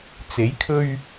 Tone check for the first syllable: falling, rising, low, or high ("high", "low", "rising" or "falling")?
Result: rising